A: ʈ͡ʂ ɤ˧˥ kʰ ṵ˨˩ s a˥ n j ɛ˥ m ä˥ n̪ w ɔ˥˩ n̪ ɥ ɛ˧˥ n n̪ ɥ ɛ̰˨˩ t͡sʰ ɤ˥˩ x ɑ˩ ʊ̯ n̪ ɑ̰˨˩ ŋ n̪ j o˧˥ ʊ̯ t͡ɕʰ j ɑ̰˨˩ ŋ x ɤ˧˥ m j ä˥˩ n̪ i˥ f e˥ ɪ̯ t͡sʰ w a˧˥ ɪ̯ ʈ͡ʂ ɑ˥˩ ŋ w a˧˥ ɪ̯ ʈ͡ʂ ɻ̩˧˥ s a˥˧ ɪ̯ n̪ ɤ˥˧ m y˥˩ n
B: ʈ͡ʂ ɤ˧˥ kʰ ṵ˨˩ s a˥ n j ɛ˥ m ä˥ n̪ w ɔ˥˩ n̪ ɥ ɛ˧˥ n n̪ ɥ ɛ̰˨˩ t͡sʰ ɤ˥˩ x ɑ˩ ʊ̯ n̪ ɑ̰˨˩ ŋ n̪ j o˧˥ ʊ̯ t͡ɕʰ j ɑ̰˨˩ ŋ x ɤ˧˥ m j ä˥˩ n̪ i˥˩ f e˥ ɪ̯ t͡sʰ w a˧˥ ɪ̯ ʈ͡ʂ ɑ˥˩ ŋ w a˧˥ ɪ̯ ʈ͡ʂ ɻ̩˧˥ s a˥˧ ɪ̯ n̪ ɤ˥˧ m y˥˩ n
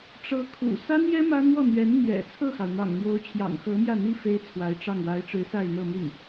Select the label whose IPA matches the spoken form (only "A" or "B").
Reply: A